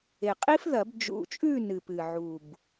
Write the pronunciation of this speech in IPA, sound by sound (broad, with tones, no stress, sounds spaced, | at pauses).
e˨˩ qʼ i˦˥ f ð ɐ˨˩˦ b d͡ʒ ṵ˨˩ t͡ʃʼ ʉ˦˨ n ɨ˨˩ p ɨ˨˩ ʕ u˨˩ b